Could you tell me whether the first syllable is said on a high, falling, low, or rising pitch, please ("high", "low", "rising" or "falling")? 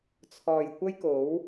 low